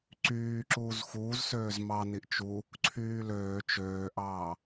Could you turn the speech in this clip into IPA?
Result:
ǀ yː ǁ uː z x uː z s øː z m ɑ n i ʔ t͡ʃ u | ǀʰ yː l øː t͡ʃ øː ʔ ɑː

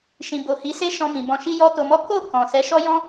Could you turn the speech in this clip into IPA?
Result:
ʃ ĩ˨ b o˨ h i˨˦ s e˦ ʃ ɔ̃˧ m ĩ˨ b ɔ̃˧ ʃ i˦ j ɔ˦ t o˧ m ɔ˦ k o˦˨ k ɔ̃˨ s ɛ˨˦ ʃ ɔ˦ j ɔ̃˦

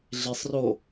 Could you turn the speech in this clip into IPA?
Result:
ɮ e sˤ r o

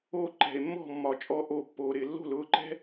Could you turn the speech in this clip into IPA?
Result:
oː˥˩ ǃ ɛ̤˩ e̯ mː ɔ̤˥˩ mː ɒ˩ t͡ʃʼ ɔ˧ ʔ o˩˧˩ pː oː˩ ɾ ɪː˩ lː o̤˥˩ l ʊː˩˧˩ ǃ ɛ̤˥

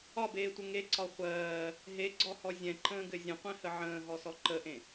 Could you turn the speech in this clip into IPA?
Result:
ɒ b eː tʷ ɘ ŋ e ǀ ɒ χʷ ɜː | ɦ e ɡ͡ǀ ɔ h ɔ zʲ ɛ̃ ǃ ə̃ː ɡ ɘ zʲ ə̃ qʷ ɛ̃ h ə ʕ ə̃ː ɦ ɔ s ɔ ǃ ə ʔ ẽ

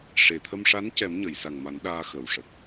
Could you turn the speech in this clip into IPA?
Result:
ʂ e˨˩ t̪ʰ ə˧ m ʂ a˧˥ n c ɛ˨˩˦ m ɲ ə˨˩˨ j s a˨˩ ŋ m a˨˩˦ n ɗ aː˧ x ə˨˩ w ʂ ə˨˩ k̚

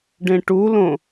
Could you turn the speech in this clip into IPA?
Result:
ɖ ẽ ʈ u l õ

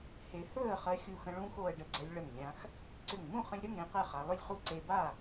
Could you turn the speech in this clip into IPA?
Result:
h e˧ h ɵː˥˨ ə̯ χ ɜ˧ xʲ u˧˩ x ə̃˧ ɭ ũː˧ x o˧ ə̯ ɖ ə˧ ɡ͡ǀ ɛ˧ lʲ ɭ ə˧˩ ŋ lʲ ã˧ x | ǀ ʏ˧˩ ŋ m ũ˥˨ χ ə̃˧ lʲ ɾ ɵ˥˨ ŋ ɾ ẽ˧ q ɛ˥˨ χ a˧ lˠ ʏ˥˨ lʲ χ u˥˨ ǀ e˧ b a˥˨

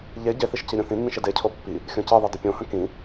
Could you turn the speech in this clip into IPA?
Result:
ʎ e ɟ e θ i ʃ c i ɾʲ õ θ ĩ nː ĩ ʃ e d e cʰ o pː i | xʲ õ c i ðˤ i d ə pʲ õ h ə̃ k ĩ

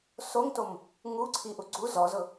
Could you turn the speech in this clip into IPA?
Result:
s o ŋ t o m | ŋ u ǀʰ i ʔ u ɡ͡ǀ u z ɔ z ʊ

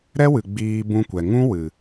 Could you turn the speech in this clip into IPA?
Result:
ɾ ɛ˦ w ɨ˨ ɡ͡b iː˧ b ũ˧ kʷ ɛ˨ ŋ ũ˦ w ɨ˨

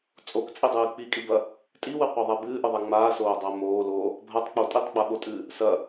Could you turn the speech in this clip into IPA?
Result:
t͡sʼ o k t͡sʼ i dˤ ɨː k͡p i kʼ i b ɐ | tʼ i w ɨ qʷ a ðˤ a b ɨː ʔ ɯ ðˤ a ŋ͡m aː s oː dˤ a m oː l oː | bʱ a tˤ k͡p o tʼ i tˤ ɡ͡b a ɓ o tʼ ɨː | s ɐ

